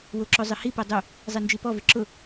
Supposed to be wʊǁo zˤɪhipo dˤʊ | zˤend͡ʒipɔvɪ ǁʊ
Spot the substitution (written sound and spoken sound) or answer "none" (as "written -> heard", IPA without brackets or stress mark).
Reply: none